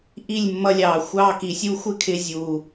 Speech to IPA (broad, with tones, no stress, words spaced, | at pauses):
ʔi˦˨lʲmːʌ˧lʲɑː˨ xʷɑː˧ki˨sʲu˧ xʷɪ˦˨kʰɪ˧ zʲuː˨